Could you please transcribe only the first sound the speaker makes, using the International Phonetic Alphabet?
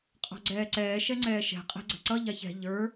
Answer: qʼ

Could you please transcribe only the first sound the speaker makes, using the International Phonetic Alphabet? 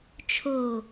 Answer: t͡ʃʰ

